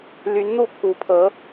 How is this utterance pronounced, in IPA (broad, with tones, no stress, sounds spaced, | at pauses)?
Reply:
l y˧˥ n n̪ u˥˩ pʰ u˧˥ pʰ ɤ˧˥